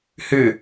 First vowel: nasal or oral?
oral